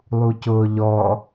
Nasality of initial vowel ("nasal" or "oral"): oral